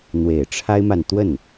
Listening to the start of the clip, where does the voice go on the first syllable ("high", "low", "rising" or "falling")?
low